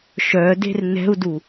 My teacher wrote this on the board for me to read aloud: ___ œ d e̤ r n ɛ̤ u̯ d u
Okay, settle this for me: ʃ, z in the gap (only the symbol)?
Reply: ʃ